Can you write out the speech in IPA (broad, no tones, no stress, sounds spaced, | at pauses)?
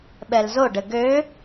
ɓ ɛ l z o ɖ ɘ ɡ ø